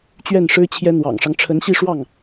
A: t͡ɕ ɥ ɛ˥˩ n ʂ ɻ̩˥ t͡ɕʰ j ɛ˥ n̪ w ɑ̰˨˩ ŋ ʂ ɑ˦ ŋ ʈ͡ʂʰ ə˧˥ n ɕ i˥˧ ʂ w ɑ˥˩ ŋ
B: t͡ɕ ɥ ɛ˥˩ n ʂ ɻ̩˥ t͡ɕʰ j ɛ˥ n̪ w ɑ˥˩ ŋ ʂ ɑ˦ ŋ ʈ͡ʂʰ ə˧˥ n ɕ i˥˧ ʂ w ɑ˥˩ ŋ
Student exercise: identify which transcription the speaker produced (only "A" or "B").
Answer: A